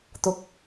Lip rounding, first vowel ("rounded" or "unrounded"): rounded